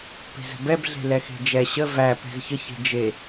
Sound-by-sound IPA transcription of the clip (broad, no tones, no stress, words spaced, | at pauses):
pe̤zə̤bɛbɮe̤ lɛxe̤d͡ʒɛ ɕə væ pɛ̤zçəçe̤ d͡ʒe